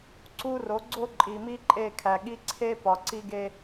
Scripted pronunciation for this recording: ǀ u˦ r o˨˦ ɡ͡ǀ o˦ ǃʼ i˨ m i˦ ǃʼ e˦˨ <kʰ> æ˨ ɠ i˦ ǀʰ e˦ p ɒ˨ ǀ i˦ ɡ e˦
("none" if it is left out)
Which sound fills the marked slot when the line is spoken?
kʰ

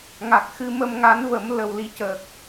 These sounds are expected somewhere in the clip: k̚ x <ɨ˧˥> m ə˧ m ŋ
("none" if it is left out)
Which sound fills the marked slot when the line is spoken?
ɨ˧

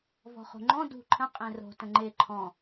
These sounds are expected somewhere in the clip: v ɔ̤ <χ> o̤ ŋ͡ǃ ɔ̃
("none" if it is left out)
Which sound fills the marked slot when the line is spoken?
χ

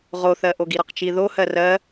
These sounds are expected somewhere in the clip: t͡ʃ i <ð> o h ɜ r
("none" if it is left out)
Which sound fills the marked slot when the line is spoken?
ð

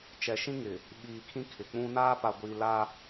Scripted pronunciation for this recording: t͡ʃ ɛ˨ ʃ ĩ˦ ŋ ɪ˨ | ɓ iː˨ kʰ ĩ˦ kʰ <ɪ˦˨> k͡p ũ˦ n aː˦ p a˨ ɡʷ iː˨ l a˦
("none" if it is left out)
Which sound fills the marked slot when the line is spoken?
ɪ˨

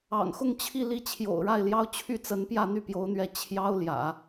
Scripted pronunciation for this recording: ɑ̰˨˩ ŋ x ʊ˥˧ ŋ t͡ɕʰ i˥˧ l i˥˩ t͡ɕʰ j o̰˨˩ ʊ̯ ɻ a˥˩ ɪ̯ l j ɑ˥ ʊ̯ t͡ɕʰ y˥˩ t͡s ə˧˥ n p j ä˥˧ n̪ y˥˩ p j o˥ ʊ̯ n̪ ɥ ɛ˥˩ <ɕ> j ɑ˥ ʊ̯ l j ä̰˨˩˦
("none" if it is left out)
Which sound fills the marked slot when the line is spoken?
t͡ɕʰ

